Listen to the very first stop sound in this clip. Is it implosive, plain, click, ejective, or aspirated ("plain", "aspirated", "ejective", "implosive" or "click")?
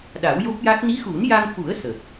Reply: implosive